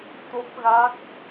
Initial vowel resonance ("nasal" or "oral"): oral